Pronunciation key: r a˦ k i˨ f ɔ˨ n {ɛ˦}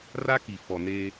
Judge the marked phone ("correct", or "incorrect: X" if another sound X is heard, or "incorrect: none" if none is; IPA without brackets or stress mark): incorrect: e˦